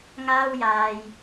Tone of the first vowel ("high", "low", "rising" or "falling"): high